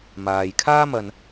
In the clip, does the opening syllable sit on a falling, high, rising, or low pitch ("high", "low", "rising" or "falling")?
low